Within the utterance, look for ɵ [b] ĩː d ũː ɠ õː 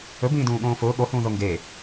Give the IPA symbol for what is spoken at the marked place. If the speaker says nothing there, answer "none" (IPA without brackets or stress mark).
b